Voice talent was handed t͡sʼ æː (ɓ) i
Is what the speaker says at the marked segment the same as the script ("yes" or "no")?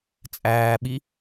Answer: yes